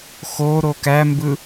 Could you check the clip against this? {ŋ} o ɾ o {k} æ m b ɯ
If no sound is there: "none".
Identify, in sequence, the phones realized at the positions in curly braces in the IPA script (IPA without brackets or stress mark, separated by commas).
x, k